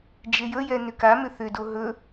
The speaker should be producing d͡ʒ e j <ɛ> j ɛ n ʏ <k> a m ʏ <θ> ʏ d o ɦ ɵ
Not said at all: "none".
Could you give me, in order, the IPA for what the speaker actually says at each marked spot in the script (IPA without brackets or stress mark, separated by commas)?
ə, k, θ